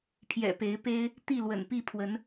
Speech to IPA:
pʰ j ɛ̰˨˩ p e˨˦ ɪ̯ p e˦ ɪ̯ | t̪ i˥˨ l w ə̰˨˩ n p i˥˨ pʰ w ə˨˦ n

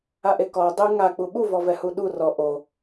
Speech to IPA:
a ʔ e k ɔ dˤ e ŋ a k͡p u ɓ u v ɔ v ɛ h u ɗ u r ɔ ʔ o

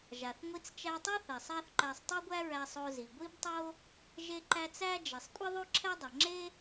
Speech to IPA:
ʒ a˩ θ ŋʷ i˧ t͡s t͡ʃ æ˧ tˤ o˥ θ ɛ˩ sˤ a˥ θ ǃ æ˧ sˤ tˤ o˥ ɡʷ æ˥ ɹ æ˧ sˤ o˧ z i˩ ɡʷ i˥ b tˤ o˥ | ʒ e˧ ǃ æ˧ t͡s æ˥ d͡ʒ ɛ˩ sˤ kʷʼ i˥ ðˤ o˥ ǁʰ ɛ˥ dˤ ɛ˩ ŋ͡ǁ e˥

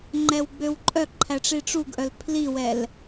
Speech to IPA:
ŋ͡ǃ ɛ w ɡ͡b ø w ǃʼ œ ǃʰ æ ʈ͡ʂ i ʈ͡ʂ u ɡ ʔ œ l pʰ l i w ɛ l

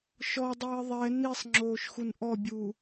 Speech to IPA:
ʃ ɔ dˤ ɪː ðˤ ɛ n i sˤ ŋ͡ǁ oː ʃ x u n ʔ ɔ bʲ u

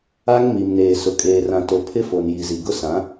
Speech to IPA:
a˦ ŋ m i˨ m n eː˨ s ʊ˨ kʼ eː˨ r ã˨ t o˨ pʰ ɪ˦ f o˨ n j i˨ z i˨ ɡ ʊ˦ s ã˨˦

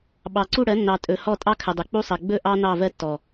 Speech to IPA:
ɓ ɑ˨ ǀ u˦˨ ɽ ɜ˨˦ nː ɑ˨ tʼ ɵ˨ h ɔ˦˨ tʼ ɑ˦ kʰ ə˨ dˤ ɵ˨ k͡p u˦ sˤ ɜ˨ ɡ͡b ɵ˦ ʔ ɑ˦ n ɑ˦˨ v ɜ˦ tː ɔ˨

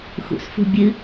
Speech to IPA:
x ṵ s f ṳ bʲ ɨ

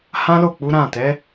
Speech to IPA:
h ã˦ l o˦˨ k͡p u˨˦ ɾ ã˦˨ t ɛ˨˦

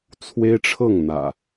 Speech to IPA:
t͡sʰ w e˦ ɪ̯ ʈ͡ʂʰ ɤ˥˨ ŋ n̪ ä̰˨˩

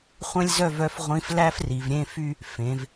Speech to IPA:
χʷ ɛ̃˥ lʲ z œ˥˧ v œ˧˥ f ʁʷ ĩ˧˥ f l æ˥ f r i˩˧ v ɾʲ ẽ˧˥˧ f y˥˧ | f ẽ˩˧ v

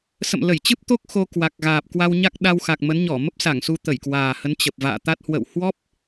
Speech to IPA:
s ə̰˧˨ m l ə˧˩ j t͡ɕ ɨ˦˥ p̚ t̪ o˦˥ k̚ x o˧ k w a˨˩ k̚ ɣ aː˨˩ p̚ k w a˧ w ɲ a˦˥ k̚ ɗ a˧ w x a˨˩ k̚ m ə˨˦ n ɲ ɔ˧˩ m ə˦˥ p̚ s a˧˩ ŋ s u˧ t̪ ə˧˩ j k w aː˨˩ h ə˨˦ n t͡ɕ ə˨˩ p̚ v a̰ː˧˨ t̪ a˦˥ t̚ h w ə̰˧˨ w h w ɔ˦˥ p̚

